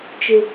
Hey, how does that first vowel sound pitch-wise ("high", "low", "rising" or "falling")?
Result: high